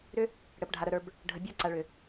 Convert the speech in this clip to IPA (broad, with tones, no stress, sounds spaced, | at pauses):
ɾ ʏ˦ | ɽ ə˨ p ɖʱ a˨ ɾ ə˨ ɾ ə˞˨ b | ɖʱ ə˨ bʲ ə˞˧ ǀ a˨ ɭ ʏ˨